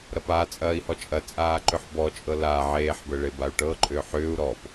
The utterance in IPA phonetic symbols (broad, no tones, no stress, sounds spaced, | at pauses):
ɾ ɐ p a t͡sʼ ɐː i̯ h ɔ t͡ʃʼ ɐ t͡sʼ aː ǃ ʏ ħ b ɔ t͡ʃʼ ɤ l a ʕ eː ħ b ə ɭ e b a u̯ ʈ ɤ ǃʼ ʏː ħ ʏː u̯ ɾ ɔ p